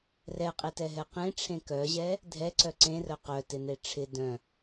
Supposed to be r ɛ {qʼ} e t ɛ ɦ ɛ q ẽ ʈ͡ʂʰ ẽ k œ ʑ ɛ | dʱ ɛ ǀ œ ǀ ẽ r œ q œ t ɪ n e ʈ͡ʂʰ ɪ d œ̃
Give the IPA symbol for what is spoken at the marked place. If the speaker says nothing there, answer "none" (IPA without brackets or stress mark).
qʼ